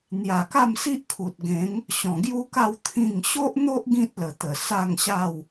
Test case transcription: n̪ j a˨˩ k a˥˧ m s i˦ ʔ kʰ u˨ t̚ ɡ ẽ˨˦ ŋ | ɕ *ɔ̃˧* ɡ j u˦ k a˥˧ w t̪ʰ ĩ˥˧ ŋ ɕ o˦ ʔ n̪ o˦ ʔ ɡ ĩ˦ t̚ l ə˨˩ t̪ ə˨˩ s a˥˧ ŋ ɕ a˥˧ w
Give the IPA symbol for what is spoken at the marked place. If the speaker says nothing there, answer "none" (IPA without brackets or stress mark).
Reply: ɔ̃˨˩